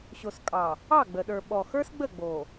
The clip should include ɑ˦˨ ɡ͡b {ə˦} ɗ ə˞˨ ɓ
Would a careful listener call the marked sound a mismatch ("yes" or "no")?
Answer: yes